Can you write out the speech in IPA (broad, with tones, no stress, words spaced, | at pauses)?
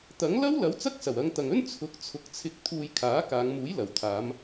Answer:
t̪ɐ˨˥ŋ lɐ˥wlɐ˨˥w t͡sɐ˥k̚sɐ˨˩wɐ˨˧ŋ t̪ɐ˨ŋɵ˥n t͡sʰʊ˨˥k̚t͡sʰʊ˨k̚t͡sʰɪ˧k̚ t̪ʰuː˧jkʰaː˨˥kaː˨˧ŋ muː˨˥jlɐ˨˩w t̪ʰaː˨˧m